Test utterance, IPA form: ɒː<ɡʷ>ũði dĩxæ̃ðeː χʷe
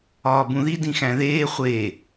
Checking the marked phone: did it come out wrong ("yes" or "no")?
yes